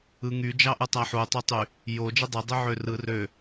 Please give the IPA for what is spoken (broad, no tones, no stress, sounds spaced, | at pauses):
ɯ ŋ y d͡ʒ ɑ ʔ ɯ tˤ æ ħ u tˤ e tˤ y | j o d͡ʒ ɯ dˤ e dˤ y ʕ ø r ɯ r ø